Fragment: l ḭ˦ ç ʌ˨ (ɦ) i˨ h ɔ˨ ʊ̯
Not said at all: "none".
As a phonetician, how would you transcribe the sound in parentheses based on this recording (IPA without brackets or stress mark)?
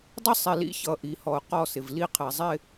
ʔ